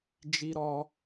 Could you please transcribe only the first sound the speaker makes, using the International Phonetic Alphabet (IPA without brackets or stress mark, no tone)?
d͡ʒ